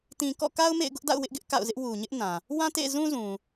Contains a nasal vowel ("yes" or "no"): yes